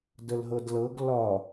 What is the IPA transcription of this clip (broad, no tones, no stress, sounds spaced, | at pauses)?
d ə l ɦ ɤ d l ɤ ɡ l ɒ